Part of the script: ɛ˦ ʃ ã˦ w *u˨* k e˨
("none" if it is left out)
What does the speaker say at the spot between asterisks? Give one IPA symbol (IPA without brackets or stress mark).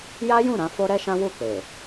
u˦˨